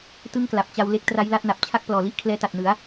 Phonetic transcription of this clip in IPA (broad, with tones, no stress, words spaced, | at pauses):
tɯ˥˩ŋkla˨˩p̚ t͡ɕa˧w le˦˥k̚ tra˦˥jla˥˩t̚na˨˩p̚ t͡ɕʰa˥˩k̚plɔː˨˩li˥˩ʔ kʰlɛː˦˥ta˨˩t̚nɯ˩˦a̯